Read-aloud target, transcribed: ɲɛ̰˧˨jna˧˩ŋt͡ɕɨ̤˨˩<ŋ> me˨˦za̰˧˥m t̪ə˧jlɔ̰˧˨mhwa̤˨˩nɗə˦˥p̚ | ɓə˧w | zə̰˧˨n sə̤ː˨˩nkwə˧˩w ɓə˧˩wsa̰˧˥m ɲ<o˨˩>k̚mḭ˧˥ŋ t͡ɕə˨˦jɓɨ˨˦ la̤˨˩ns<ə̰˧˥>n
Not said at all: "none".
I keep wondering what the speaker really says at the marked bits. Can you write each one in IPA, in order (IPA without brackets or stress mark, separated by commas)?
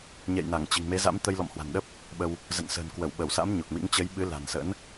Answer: ŋ, o˨˩, ə̰˧˥